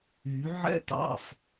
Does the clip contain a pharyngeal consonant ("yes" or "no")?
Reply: yes